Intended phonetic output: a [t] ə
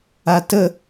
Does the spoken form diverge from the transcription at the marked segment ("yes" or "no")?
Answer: no